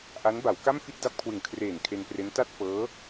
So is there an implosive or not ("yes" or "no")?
no